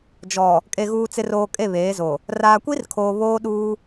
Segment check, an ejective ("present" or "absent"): present